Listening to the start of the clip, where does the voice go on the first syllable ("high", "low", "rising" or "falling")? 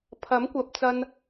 rising